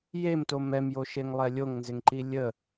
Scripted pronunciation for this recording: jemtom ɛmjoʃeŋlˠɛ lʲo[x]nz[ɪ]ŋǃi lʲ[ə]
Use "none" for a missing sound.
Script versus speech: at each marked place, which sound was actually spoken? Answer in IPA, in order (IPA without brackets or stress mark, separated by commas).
ŋ, ɪ, ə